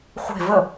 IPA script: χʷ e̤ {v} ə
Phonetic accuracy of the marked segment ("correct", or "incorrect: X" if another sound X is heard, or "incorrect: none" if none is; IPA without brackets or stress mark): correct